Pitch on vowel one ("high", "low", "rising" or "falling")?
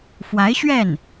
rising